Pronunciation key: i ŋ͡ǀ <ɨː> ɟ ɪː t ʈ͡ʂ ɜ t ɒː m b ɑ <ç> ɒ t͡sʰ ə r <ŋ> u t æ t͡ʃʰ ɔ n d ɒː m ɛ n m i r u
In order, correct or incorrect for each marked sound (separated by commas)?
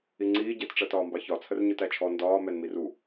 incorrect, correct, incorrect